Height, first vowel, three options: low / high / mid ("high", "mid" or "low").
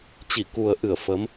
high